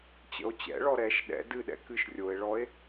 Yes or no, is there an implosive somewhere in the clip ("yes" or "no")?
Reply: yes